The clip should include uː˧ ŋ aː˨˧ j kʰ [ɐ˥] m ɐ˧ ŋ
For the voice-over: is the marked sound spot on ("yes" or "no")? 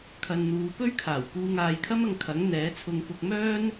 yes